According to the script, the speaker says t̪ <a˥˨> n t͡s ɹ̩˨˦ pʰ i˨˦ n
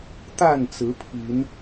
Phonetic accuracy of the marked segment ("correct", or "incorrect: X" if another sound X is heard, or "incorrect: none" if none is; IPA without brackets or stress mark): correct